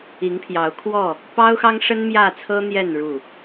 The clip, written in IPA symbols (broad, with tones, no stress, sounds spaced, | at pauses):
i˨˦ ŋ pʰ j ɑ˨˦ ʊ̯ kʰ w ɔ˥˨ | p ɑ˦ ʊ̯ x ɑ˦ ŋ ʂ ə˦ n m j ä˥˨ t͡sʰ ɤ˦ n̪ j ɛ˥˨ n ɻ u˥˨